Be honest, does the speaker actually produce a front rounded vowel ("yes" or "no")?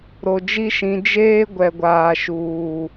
no